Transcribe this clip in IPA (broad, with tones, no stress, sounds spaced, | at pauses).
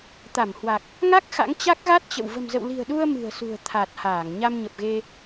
t̪ a˧˩ m h w a˨˩ k̚ | ŋ a˦˥ k̚ x a̰˧˥ ŋ t͡ɕ a˦˥ k̚ ɣ a˦˥ t̚ t͡ɕ ə̰˧˨ w v ə̤˨˩ m z ə̰˧˨ w l i̤˨˩ ə̯ ɗ u˧ ə̯ m ɨ̤˨˩ ə̯ s ṳ˨˩ ə̯ t̪ʰ a˨˩ t̚ h aː˧˩ ŋ ɲ a˧ m ɲ ə˨˩ p̚ ɣ e˧